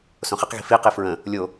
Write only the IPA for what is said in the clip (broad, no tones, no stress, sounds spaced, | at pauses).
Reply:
s õ χ ɪ q ɣ i̤ f i q i f ɹ ə̃ | lʲ o